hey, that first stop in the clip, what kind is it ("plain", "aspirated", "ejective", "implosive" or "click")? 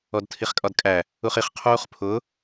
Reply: plain